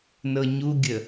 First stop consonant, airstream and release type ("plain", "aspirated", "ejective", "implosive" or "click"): plain